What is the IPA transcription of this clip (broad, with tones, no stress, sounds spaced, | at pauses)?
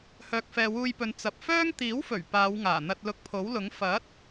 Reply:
h œː˨ k̚ f ɛː˨ w uː˧ j p ɵ˨˧ n t͡s ɐ˨ p̚ f œː˥ ŋ t̪ iː˨˥ w f ɵ˨˩ ɥ p aː˨˧ w ŋ aː˨˩ n̪ ɐ˧ t̚ l ʊ˧ k̚ pʰ o˨˥ w l ʊ˨˥ ŋ f ɐ˨˥ t̚